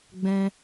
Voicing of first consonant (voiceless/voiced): voiced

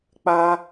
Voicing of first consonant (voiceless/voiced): voiceless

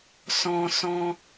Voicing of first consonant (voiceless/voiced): voiceless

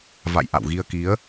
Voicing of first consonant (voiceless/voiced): voiced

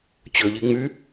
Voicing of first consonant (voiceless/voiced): voiceless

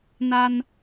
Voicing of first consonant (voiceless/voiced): voiced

